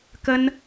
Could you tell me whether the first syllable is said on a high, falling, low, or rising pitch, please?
high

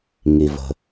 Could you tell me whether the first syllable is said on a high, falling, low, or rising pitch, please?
low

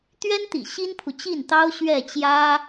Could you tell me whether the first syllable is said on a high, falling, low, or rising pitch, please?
high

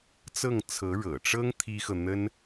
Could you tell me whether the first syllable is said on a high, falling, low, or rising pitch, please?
falling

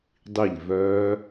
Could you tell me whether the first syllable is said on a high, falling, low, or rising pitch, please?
falling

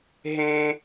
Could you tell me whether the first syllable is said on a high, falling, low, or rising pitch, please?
high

